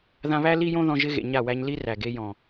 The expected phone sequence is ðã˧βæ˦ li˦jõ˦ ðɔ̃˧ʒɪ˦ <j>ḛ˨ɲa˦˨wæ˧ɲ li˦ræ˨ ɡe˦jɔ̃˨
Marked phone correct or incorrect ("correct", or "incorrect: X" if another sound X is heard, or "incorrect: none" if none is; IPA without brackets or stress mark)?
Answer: incorrect: ɣ